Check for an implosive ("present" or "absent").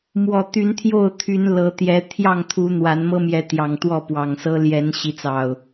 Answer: absent